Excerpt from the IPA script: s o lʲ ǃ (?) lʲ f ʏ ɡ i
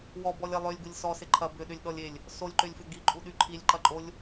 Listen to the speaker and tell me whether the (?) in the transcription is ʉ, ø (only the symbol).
ø